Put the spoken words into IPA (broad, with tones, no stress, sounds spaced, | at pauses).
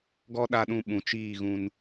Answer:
ɡ ɔ˦ ɗ a˧ ɗ ũ˧ ɓ ũ˨ t͡ʃ iː˦˨ ɣ ũ˧ n